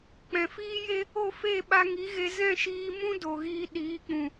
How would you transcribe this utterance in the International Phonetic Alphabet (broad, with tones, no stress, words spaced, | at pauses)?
k͡pɛ̃˨fiː˦je˦ | o˦˨fe˦˨ ɓa˧ŋi˨˦ɣe˧ zɛ̃˦˨ʃiː˧ mũ˦ do˨ɣiː˧ ɗiː˨˦k͡pũ˨